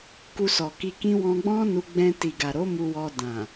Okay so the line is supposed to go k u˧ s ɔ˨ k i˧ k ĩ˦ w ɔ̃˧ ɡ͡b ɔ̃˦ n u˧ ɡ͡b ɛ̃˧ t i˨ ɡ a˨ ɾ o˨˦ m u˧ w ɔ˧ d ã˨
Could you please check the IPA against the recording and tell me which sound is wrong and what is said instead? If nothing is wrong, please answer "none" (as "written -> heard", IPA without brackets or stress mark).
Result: none